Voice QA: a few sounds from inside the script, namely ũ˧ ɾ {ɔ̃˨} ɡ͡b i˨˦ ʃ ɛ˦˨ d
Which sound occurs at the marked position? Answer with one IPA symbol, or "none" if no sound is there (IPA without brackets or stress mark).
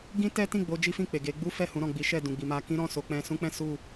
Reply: ɔ̃˨